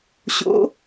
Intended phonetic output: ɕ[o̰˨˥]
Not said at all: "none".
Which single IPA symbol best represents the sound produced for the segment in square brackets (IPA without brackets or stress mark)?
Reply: o̰˨˥